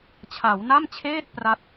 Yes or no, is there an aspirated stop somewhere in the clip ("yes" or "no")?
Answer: yes